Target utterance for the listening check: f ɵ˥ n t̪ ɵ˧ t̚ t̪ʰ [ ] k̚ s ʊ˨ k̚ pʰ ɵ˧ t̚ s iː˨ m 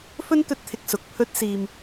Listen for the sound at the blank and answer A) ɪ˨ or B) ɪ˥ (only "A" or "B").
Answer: A